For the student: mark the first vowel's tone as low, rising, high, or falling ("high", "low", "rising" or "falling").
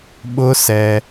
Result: high